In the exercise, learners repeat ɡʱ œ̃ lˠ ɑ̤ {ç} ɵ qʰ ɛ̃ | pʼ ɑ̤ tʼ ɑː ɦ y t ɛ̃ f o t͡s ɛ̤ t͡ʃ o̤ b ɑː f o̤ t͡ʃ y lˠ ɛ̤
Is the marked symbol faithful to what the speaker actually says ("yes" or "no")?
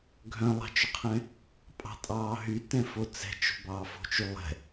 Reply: no